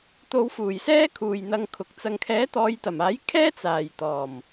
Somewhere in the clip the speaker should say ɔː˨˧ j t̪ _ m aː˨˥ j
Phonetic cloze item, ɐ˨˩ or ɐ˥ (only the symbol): ɐ˨˩